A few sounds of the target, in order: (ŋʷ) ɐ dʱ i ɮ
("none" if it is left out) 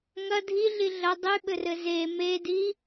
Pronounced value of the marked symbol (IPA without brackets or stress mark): ŋ